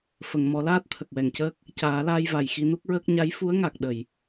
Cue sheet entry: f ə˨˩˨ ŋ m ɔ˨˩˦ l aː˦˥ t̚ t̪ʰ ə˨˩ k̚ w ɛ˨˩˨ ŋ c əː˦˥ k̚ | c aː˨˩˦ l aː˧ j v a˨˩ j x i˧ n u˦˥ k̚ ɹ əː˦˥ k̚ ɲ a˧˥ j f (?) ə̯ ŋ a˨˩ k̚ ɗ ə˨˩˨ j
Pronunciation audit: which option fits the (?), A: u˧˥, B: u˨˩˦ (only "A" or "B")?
A